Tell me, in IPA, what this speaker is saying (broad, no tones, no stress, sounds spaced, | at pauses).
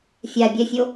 fʲ a bʲ ɛ fʲ o